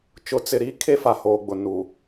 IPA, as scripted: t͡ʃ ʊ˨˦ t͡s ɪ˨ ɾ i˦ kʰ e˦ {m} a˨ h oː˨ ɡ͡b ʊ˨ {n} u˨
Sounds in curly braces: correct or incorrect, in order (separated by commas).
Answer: incorrect, correct